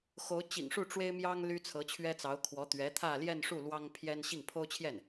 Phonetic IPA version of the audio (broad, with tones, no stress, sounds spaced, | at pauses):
x o˧˥ ʊ̯ t͡ɕ ḭ˨˩ ŋ ʂ u˥˩ ʈ͡ʂ w e˥ ɪ̯ m j ɑ˥ ŋ l y˥ t͡sʰ ɤ˧˥ t͡ɕʰ ɥ ɛ˥ t͡s ɑ˧˥ ʊ̯ kʰ w ɔ˧˥ t̪ ɥ ɛ˧˥ t̪ʰ ä˥˧ l j ɛ˥˧ n ʂ u˥˩ l w ɑ˥ ŋ pʰ j ɛ˥ n ɕ i˥˩ ŋ pʰ o˥ ʊ̯ t͡ɕʰ j ɛ˥˩ n